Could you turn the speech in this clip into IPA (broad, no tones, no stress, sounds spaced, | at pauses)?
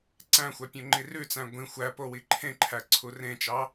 ǀ æ̃ xʷ æ pʲ õ ŋ͡ǃ i r ʉ t͡s æ̃ ɡʷ ĩ xʷ æ p o w i ǃʰ ẽ ǃʰ æ ǀʰ u r ẽ t͡ʃ ɑ